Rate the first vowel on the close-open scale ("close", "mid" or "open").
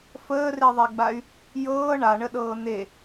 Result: mid